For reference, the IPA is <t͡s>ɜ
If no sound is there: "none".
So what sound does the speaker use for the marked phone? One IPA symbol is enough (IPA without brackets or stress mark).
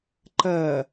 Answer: ǃ